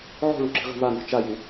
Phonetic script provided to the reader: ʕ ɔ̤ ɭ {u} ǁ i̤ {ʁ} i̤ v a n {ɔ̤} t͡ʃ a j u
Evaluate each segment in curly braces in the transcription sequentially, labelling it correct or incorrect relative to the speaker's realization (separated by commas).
correct, correct, correct